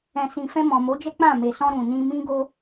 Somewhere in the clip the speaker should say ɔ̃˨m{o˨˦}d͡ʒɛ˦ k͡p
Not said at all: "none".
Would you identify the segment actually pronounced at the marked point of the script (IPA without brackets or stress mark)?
o˨˦